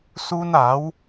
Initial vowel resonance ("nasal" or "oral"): oral